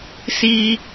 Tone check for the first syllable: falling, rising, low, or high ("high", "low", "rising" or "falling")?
high